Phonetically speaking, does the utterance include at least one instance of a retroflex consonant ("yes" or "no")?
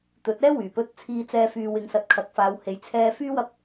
no